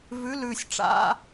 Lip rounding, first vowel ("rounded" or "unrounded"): rounded